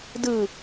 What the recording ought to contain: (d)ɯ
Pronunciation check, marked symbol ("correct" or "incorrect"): correct